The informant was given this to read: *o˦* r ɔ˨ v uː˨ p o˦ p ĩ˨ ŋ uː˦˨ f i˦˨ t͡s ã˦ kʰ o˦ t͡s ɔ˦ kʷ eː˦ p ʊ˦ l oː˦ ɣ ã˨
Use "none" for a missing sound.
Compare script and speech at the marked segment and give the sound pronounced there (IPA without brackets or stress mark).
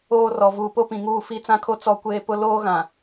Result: oː˦